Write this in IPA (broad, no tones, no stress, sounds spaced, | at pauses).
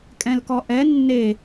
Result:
kʼ ɛ̃ l k ɔ ʔ ɛ nː e